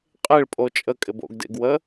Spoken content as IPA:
qʼ e ɭ pʼ o t͡ʃʼ ə kʼ ɪ b o̰ ɡ d ḛ ɡ w ə

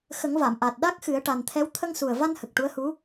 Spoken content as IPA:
x ə˨˩˦ ŋ v a˨˩˨ m ʔ a˨˩ t̚ ɗ a˦˥ k̚ x ɨ˨˩˦ ə̯ ʈ a˨˩ n t̪ʰ ɛ˧˥ w t̪ʰ ə˧ ŋ s u˨˩ ə̯ v a˧ n h ə˨˩ k̚ ʈ u˧˥ ə̯ h u˧˥

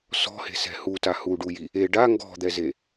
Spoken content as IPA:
s ɔ̤ h e̤ s ɛ̤ h u t a h u ɖ u j i | e ɖ a ŋ ɡ ɔ̤ d̪ ɛ z e

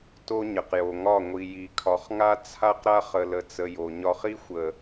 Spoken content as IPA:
t o˦ ɲ ə˨ q j o˨ ŋ ɒ˦˨ ŋʷ i˨ j i˨ kʰ ɒ˨ χ ŋ a˦ t͡sʰ a˦ q ɾ a˦ χ ə˨ l ə˨ t͡s ə˨ j o˨ ɲ ɒ˦ χ i˦ xʷ ə˨

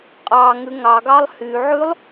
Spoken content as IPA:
qʼ ɑ ŋ ʉ ŋ ɑ ɡ ɑ lˠ h y ʕ ʉ lˠ

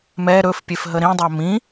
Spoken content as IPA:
m ɛ ɾ ɵ f pʲ e f ɦ ə ɾ ĩ dˤ æ m ĩ

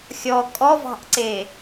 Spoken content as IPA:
xʲ ɔ kʼ ɔ v ɑ̤ ʔ ǀ e

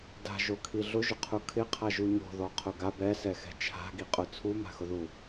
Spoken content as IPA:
d a̤ ʒ o kʰ i ɮ ʊ ʒ ʊ qʰ u kʰ ɪ qʰ a ʒ u ɲ o̤ ð ɔ qʰ ʊ ɡ a b ɛ s ɛ x ɛ̤ t͡ʃʰ a̤ ɡ i qʼ ʊ t͡sʰ u m a̤ x ʊ ð u

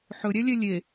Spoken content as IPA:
ħ ɵ ɾʲ ɛ lʲ ɛ lʲ e

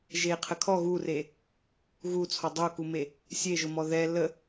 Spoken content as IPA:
ʒ e qʰ ə kʰ ɔ ɣ u r e | ɣ u t͡sʰ ɔ dˤ o k u m e | sʲ e ʒ ʊ m ɔ ð ɛ l ə

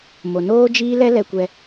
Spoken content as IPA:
m o˨ n oː˦ d͡ʒ iː˦ l ɛ˦ l ɛ˧ kʷ ɛ˧

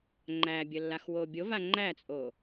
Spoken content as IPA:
ŋ͡ǃ æ bʲ ə lː a x w o bʲ o v a ŋ͡ǃ æ t͡sʼ o

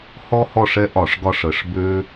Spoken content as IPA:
h ɔ˦ h ɔ˦˨ ʂ ɛ˦ ʔ ɒ˧˩˧ ʂ ɡ ɒ˦˨ ʂ ə˧˩˧ ʂ b ø˦

